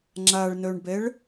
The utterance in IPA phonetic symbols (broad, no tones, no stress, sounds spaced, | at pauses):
ŋ͡ǁ a ɭ n œ ɳ b ɛ ɭ